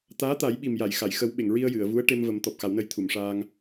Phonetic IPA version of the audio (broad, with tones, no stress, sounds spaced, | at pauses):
t̪ aː˧˥ t̪ a˨˩˦ j ɓ i˨˩ m j a˨˩˨ j x a˨˩˨ j x ə˨˩˦ w ɓ e˨˩˨ ŋ ɹ i˧ ə̯ j ɨ˨˩˨ ə̯ v u˧˥ ə̯ ʈ e˧ m v ə˨˩˦ m t̪ ɔ˨˩ p̚ x a˨˩˦ w n ə˧ j t̪ʰ u˨˩˨ m ʂ aː˧ ŋ